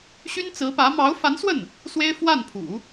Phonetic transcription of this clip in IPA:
ɕ y˥ n t͡s ɹ̩˧˥ p ä˧˥ m ɑ˧˥ ʊ̯ f a˧˥ n s w ə˥˩ n | s w e˥ ɪ̯ f w a˥˩ n pʰ ṵ˨˩˦

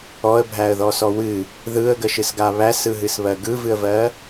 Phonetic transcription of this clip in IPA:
ɔ ə̯ bʱ æ ə̯ ð ɔ s ɔ w ɨ | ð ɯ ə̯ ɡ ə ʃ ɨ s ɡ a β æ s ɯ ɦ ɨ s β ɜ ɡ ɯ v ɨ ə̯ v ɜ

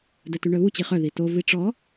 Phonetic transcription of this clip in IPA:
d œ t y ɳ œ β u t͡ɕ i χ œ ð i t o v i ʈ͡ʂ ɔ

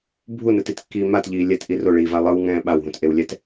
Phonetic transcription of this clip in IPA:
bʱ u n ɯ t i t kː iː m a t ʎ iː lʲ ɛ t ʔ i r o ɭ iː v a lˠ ɯ w ŋ ɛ̃ː ɓ a w ɦ ũ t ʔ e w lʲ ɛ t

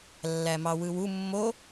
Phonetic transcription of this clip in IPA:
lː æ m ɑ w ɯ w u mː o

